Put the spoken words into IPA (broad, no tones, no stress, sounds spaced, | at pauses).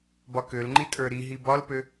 b ɒ k ø l ŋ͡ǃ i tʼ ə˞ ɾ i ɦ i b ɒ l p ø